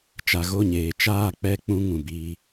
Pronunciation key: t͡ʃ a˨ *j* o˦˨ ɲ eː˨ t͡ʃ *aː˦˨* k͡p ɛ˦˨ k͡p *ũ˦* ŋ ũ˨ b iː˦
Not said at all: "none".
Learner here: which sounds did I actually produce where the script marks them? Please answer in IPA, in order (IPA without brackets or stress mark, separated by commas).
ɣ, aː˦˨, ũ˦